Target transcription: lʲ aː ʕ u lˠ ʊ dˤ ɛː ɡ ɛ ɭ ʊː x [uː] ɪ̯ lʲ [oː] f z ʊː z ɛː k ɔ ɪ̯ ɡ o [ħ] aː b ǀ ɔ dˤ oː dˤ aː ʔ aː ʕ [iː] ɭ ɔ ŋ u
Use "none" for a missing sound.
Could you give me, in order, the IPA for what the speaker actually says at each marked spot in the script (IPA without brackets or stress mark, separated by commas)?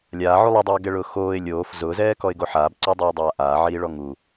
oː, oː, ħ, iː